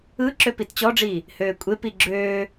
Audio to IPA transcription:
ɯ ǁ ø p i t t͡ɕ ɔ ɖ͡ʐ iː | h øː kʷʼ e p i ɡ͡ǁ øː

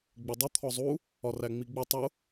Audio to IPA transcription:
ɡ͡b ɪ dˤ ʊ t̪ʰ ɔ zˤ u | ɒ r æ ŋ͡m i ɡ͡b ɪ tˤ ʊ

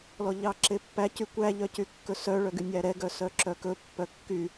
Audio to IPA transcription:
l ɔ ʎ ɑ ǁ e pː æ c y kʷ æ ʎ œ c y kː ɵ s œ ɭ œ ɡ y nʲ æ ɾ ɛ ɡ œ s œ ǁ œ k ɵ pː œ kː y

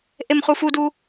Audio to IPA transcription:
ʔ e m χ u f u d u

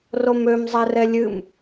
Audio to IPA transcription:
r o m ø m zˤ ɛ r ɛ lʲ ɨ m

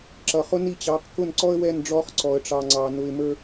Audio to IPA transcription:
ǁ ʌ˨ χ ʊ˦ n i˦˨ t͡ɕ ɑ˨˦ q k ʊ˦˨ n ǀ ɔ˦ ə̯ w ɛ˦˨ n ɖ͡ʐ ɔ˦ χ ǀ ɔ˨ ə̯ ʈ͡ʂ ɑ˨ ŋ͡ǀ ɑ˨ n ʊ˨ ɪ̯ m ə˞˦

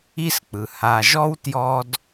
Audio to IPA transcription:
i˦ s k͡p ɯ˩ h a˨ ʒ ɔ˥ w t j ɔ˦ d

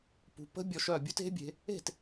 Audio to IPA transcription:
p ṳ˨˦ p ə̤˦˥ bʲ ɔ˨˦ ʃ œ˥˩ bʲ u˦˥ t e̤˦˥ bʲ e̤˨˦ | e̤˥˩ t

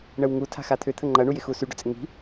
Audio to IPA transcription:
ɳ ə w ŋ u tʰ a̤ x a t̪ʰ ʏ t̪ʰ ə ŋ͡ǃ ɐ ɳ u j ɪ x u s y ɖ ʏ t͡sʼ ɪ ŋ i̤

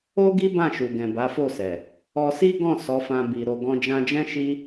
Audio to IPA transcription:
o˦ ɡ i˦ b ã˦˨ ʃ u˨ ɡ ɛ̃˨ b a˨˦ f o˦˨ s ɛ˨ | ɔ˧ s i˦ ɡ ɔ̃˦˨ s ɔ˨˦ f ã˧ b i˨ ɾ o˨ ɡ ɔ̃˧ d͡ʒ ã˧ d͡ʒ ɛ̃˦ ʃ i˦

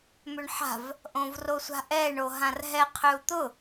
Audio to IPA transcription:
m ʏ ɳ ħ a̤ v | ʔ õ v r o sʷ a̤ ʔ ɛ ɳ o ɦ ã r ɦ ɛ qʰ ø u̯ t̪ ʊ

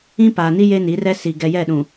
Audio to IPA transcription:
ĩ˦ p aː˨ n i˦ j e˦ n i˨˦ r ɛ˦ s i˨ ɡ ɛ˨ j ɛ˦˨ ɗ ũ˨

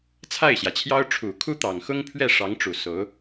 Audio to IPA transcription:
t͡sʰ a˥˩ ɪ̯ ɕ j ä˩ t͡ɕʰ j ɑ˥ ʊ̯ ʈ͡ʂʰ u˨˩ kʰ u˥ t̪ ɑ˨˩ ŋ x ʊ˥ ŋ pʰ ɥ ɛ˥˩ ʂ ɑ˧˥ ŋ ʈ͡ʂ u˨˩ s o˧˥ ʊ̯

